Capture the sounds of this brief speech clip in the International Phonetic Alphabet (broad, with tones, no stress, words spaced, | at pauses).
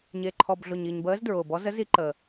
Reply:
ɲe˨ǃʰɔ˨bɮʊ˨ɲi˨ɲ bəː˧˥zdɹʊː˨bɔ˧˥ zə˧˥zi˧˥ǃəː˨